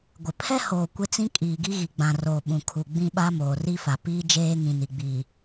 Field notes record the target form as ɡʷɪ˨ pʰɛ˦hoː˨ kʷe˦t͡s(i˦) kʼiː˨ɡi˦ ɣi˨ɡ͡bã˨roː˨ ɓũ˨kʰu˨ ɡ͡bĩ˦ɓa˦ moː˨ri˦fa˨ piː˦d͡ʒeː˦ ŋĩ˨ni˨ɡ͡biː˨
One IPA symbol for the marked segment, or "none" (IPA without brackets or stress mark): ĩ˦